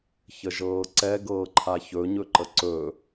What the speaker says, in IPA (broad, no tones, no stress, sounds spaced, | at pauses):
ç ə ʒ ɤː ǀ ɛ ɡ ɤː ǃʰ a ç ɵ ɲ ɵ ǃ ə ǀ ɵ